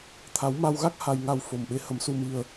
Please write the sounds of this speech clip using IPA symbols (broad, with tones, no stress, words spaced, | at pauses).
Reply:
t̪ʰa˨˦w ma˧wɣa˦˥k̚ ha˧jŋa˧w fo˨˩mɓe˨˦ hə˨˦msu˧mi˧ə̯